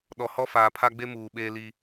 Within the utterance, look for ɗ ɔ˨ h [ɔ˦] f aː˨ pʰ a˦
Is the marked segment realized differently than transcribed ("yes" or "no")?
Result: no